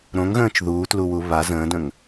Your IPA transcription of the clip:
ɾõŋɣə̃ːt͡ʃ ðuːtluwu βa zə̃ːdə̃ŋ

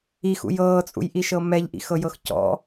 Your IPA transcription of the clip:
ixṵj ɤːt͡sʼṵjʔiʃɤ mɛʎʔḭxɤjɤx cɔ̰

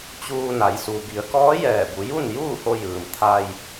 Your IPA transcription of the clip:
t͡ɕuː˧ na˩˧jsu˩ bi˩˧ə̯kɔː˧˥ jɛː˧˩bu˩˧ ju˥˨n juː˥˨ho˧ jɯː˩m t̪ʰa˧j

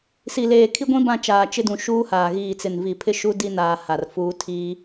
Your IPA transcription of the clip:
si˨leː˨kʰi˦ɡʷĩ˦ bã˦˨t͡ʃaː˨ t͡ʃɪ˦dũ˨ ʃuː˦haː˨ ɣiː˨t͡sɪ˨n vi˨pʰɪ˦ʃu˦ di˦naː˨ ha˨rfuː˦ tʰiː˦

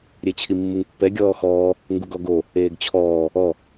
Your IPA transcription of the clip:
ɾʲet͡ɕʰimːɯŋpːɛ ɡʲɔːxɔː | ŋɡuɡɔɡo | eːɡt͡ɕʰɔː | ɔ

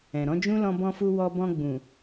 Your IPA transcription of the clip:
ɛ̃˨ɾɔ̃˨˦d͡ʒũ˦ lɔ̃˧bɔ̃˧fu˧ wɔ˧bɔ̃˧ ɡ͡bũ˨

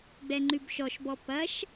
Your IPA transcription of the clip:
ɡ͡bɛŋ͡ǃʉbʃɔʃbɔ pɐʃ

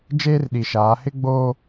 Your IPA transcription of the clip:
d͡ʒeː˦rɗi˨ʃaː˨˦ hɪ˦ɡ͡boː˦

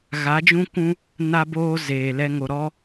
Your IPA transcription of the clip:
ɣa˨˦d͡ʒũ˦kʷũ˦ | na˧boː˧ zeː˨lɛ˦ŋo˧ ɾɔ˦

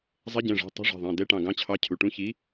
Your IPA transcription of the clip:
zˤɛ˨˥ɟɛ̃˩˧˩ʐɛ̤˩˧˩ tˤṳ˨˥ʐɛ̤˩˧˩ðˤɛ̃˩˧˩ dɛ˨˥ʈɑ̃˩˧˩ɡɑ̃˨˥t͡ɕʰɑ˨˥ cʰu˩˧˩ʈũ˨˥ çi˨˥

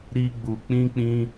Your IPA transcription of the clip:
ɾi˦ɡ͡bu˧ k͡pĩ˦k͡pĩ˦

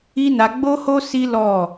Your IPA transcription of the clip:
i˦na˧ ɡ͡bo˦ho˦ si˦lɔ˦˨

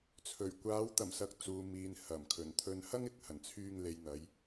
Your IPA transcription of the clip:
t͡sʰɵ˨˩ɥ kʷaː˨˧wt̪ɐ˨˩msɐ˨˥k̚ t͡suː˨miː˨n hɐ˨˩mkʰɵ˨˩n t̪ʰɵ˧nhɐ˥ŋ ɪ˨k̚hɐ˨˩nt͡sʰyː˧ŋ le˨jn̪ɐ˨˧j

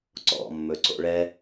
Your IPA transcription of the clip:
ǀɔ̰mːɵǀo̰ ɭɛ

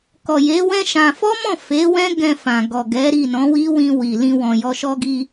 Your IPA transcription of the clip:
kɔ˨je˨˦wɛ̃˦ ʃã˧ fɔ˦mɔ̃˦˨ fe˨˦wɛ̃˦ ɡɛ̃˧fã˨ɡɔ˨ɡɛ˨˦ ɾi˦˨nɔ̃˨˦wi˦ wĩ˧wi˨ lĩ˧wɔ̃˨jɔ˧ ʃɔ˦ɡi˦

